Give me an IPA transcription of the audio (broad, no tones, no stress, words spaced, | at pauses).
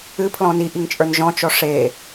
ɨ pʰlɔ̃ni ʔiŋt͡ʃʼə˞nʒɔ̃ t͡ʃɔʂe